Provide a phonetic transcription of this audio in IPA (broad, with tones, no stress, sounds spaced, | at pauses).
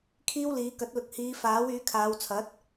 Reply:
kʰ iː˥ w l iː˨˧ k ɐ˨˥ t̚ l ʊ˨˥ k̚ h iː˨˧ f aː˨˥ w yː˨˧ kʰ aː˨˧ w t͡sʰ ɐ˨˥ t̚